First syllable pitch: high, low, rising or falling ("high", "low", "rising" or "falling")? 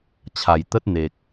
low